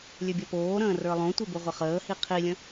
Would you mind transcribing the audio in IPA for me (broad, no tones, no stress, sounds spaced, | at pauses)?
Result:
lʲ ø bʲ ʌ p oː ɾ ə̃ː r ə˞ lˠ õ tʷ ɪ b o ʁʷ ə χ əː h i qʰ i lʲ ə̃